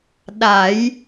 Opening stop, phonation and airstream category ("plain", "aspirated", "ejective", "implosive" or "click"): implosive